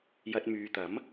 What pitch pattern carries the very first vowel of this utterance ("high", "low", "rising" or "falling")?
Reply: low